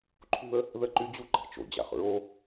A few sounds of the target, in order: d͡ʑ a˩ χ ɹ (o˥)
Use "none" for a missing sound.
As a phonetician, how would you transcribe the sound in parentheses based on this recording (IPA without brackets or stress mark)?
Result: o˥